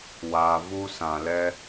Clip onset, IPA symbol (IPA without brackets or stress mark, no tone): w